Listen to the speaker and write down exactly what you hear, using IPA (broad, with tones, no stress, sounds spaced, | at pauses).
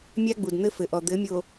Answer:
mʲ a˦ ɡ͡b u˨ d n̪ ɘ˦ f ɘ˨ ʔ ɔ˨ d̪ ɘ˨˦ mʲ o˨